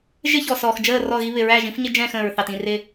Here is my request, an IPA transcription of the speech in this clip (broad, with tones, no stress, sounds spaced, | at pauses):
ʒ ɪ˦ ç ɔ˨ s ɔː˨ x d͡ʒ əː˦˨ r ɔ˦˨ ɣ i˦ β ɪ˨ ɹ æː˦˨ ʒ ĩ˦ f ɲ ɪ˦ d͡ʒ ɛ̃ː˦˨ x ə̃ː˨ ɹ θ ɑ˨ t ĩ˦˨ r ɪː˦